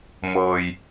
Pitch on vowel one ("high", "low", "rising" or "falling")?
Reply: low